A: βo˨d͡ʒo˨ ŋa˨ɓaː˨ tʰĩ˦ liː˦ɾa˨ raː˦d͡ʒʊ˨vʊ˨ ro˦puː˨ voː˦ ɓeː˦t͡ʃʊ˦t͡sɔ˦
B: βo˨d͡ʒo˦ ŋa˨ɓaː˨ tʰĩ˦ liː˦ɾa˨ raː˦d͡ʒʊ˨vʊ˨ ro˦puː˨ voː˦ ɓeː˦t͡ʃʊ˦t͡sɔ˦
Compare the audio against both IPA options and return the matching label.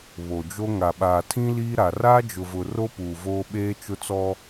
B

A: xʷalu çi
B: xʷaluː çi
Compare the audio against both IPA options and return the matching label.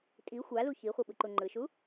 A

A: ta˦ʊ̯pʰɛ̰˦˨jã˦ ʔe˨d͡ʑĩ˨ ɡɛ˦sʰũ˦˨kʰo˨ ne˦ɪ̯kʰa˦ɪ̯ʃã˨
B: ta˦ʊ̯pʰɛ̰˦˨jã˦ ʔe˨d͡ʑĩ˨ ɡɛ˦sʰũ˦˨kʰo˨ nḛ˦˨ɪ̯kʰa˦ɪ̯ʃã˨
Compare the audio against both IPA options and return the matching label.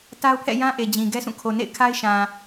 B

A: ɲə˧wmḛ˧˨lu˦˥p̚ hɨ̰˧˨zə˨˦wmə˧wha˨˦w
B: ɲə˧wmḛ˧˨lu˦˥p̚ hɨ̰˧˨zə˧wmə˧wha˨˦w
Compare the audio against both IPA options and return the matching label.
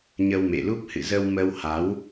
B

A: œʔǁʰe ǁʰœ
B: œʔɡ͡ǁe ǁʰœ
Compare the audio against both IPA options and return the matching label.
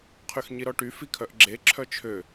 B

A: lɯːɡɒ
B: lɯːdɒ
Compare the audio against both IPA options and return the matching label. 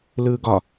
A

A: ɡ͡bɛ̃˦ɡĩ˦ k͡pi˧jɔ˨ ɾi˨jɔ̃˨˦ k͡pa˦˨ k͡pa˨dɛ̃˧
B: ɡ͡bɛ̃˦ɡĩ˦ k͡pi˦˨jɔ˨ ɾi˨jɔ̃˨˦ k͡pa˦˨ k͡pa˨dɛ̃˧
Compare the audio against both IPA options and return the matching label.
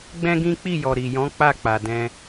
B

